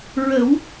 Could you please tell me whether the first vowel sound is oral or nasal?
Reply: oral